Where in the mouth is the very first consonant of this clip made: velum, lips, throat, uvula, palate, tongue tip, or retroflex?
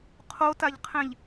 uvula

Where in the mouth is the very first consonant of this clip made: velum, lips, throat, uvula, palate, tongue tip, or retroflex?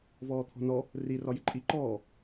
lips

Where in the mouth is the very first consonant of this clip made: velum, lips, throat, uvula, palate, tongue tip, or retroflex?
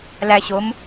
tongue tip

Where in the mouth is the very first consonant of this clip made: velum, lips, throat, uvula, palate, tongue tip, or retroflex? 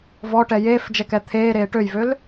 lips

